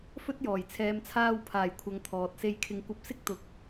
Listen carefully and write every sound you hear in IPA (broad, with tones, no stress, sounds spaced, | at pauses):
f ɵ˥ t̚ j ɔː˨˩ j t͡sʰ ɛː˨ m t͡sʰ aː˧ w pʰ aː˨˩ j kʷʰ ɐ˨ ŋ t̪ʰ ɔː˨ t̚ s e˧ j kʰ ɪ˨ ŋ kʷ ɐ˧ p̚ s ɪ˥ k̚ t̪ ʊ˨ k̚